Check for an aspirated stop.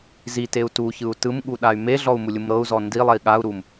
absent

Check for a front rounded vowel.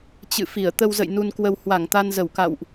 absent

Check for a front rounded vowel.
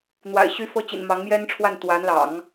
present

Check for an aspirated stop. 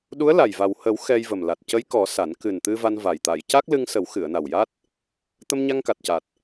absent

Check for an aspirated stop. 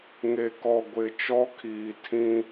present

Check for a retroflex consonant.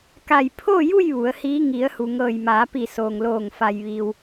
absent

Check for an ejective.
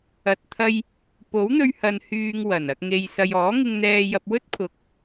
absent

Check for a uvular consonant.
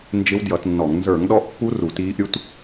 absent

